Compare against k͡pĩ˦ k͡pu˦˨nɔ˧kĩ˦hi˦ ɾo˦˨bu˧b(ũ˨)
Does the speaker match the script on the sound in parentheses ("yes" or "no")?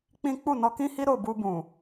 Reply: yes